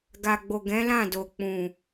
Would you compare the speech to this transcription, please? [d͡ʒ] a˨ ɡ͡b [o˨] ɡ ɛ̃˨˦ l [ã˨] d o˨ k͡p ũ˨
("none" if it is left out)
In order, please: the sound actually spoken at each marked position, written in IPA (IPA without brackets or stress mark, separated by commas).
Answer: ɡ, o˨, ã˦˨